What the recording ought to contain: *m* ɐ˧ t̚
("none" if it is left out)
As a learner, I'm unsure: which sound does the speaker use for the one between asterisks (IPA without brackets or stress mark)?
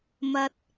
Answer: m